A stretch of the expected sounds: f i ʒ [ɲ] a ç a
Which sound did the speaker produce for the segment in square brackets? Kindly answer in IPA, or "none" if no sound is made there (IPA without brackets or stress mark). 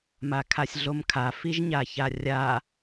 ɲ